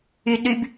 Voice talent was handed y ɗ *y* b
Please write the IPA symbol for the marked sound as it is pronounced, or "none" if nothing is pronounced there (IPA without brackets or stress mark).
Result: y